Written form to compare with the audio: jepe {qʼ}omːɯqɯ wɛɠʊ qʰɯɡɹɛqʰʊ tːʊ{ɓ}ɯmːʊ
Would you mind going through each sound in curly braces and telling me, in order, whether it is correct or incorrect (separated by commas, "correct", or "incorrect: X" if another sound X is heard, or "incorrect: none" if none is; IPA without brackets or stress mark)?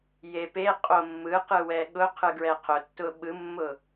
correct, correct